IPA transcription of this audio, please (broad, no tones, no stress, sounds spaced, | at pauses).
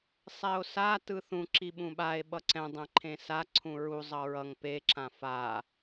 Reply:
sˤ ɛ o̯ s a t ɯ θ ũ ǁ i ɓ ũ ɓ a e̯ ɓ ʌ ǀ ɛ̃ dˤ ɛ̃ ǃʰ ẽ s a ǀʰ ũ ɹ u zˤ ʌ ɹ ʌ ŋ p e ǁ ã f a